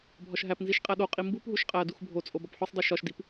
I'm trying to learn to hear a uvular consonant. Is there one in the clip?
yes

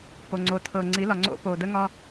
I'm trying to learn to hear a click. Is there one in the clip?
yes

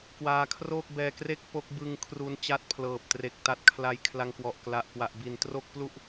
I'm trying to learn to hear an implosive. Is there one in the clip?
no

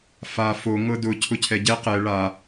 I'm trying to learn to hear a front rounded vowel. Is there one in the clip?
no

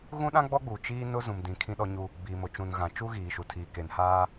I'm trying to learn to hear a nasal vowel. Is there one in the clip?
yes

